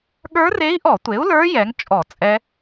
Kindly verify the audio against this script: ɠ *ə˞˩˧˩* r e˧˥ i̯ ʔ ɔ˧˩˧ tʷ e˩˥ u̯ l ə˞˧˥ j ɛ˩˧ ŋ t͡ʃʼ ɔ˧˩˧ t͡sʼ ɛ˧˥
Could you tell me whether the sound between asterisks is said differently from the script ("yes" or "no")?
yes